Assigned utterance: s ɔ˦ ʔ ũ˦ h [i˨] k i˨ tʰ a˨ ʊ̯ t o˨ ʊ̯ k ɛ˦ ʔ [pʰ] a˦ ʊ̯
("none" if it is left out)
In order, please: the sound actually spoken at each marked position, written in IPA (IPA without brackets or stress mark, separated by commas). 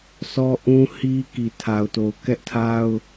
i˦, tʰ